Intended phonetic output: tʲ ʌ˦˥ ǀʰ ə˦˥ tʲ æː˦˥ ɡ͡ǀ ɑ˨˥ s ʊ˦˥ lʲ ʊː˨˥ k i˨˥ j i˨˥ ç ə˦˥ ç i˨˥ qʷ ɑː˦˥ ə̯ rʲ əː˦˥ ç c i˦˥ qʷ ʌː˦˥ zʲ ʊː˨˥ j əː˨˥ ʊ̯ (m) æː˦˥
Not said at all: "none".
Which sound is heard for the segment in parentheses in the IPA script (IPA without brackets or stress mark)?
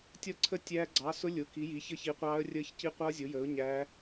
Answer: ɲ